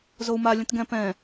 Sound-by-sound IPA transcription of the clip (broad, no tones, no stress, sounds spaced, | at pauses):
z o u̯ m a lʲ ə̃ t ɡ ɛ̃ p ɛ̃